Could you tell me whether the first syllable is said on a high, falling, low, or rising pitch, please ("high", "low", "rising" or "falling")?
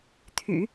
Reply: low